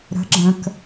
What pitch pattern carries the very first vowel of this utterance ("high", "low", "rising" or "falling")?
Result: rising